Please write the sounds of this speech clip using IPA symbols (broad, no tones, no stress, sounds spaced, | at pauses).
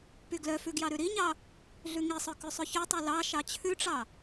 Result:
p y ɡ l œ f ʉ ɡ j ɑ ɾ ʉ ɾ i ɲ ɑ | ɮ ʉ ŋ i sˤ œ k ʉ sˤ ʉ ç ø tˤ œ l ɑ ʃ ɑ t͡ɕʰ ʉ ʈ͡ʂ ɑ